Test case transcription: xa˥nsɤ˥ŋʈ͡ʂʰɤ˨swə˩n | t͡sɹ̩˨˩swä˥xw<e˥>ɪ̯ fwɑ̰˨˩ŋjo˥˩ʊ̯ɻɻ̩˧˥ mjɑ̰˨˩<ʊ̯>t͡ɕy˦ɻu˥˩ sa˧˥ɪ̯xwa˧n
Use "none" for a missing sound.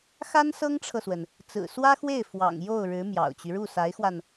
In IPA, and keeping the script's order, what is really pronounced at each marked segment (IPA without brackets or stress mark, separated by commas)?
e˥˩, ʊ̯